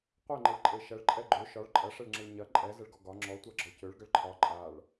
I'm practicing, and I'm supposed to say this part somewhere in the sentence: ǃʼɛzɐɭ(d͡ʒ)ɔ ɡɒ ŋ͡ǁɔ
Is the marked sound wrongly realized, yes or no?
yes